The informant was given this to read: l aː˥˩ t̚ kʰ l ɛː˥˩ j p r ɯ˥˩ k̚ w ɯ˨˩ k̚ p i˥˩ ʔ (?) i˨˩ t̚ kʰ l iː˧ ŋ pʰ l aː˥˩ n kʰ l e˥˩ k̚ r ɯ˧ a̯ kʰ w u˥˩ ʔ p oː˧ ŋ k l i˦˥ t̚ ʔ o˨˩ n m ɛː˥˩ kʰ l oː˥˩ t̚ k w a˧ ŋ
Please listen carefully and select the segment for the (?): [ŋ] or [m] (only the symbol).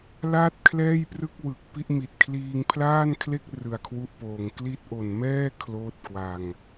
m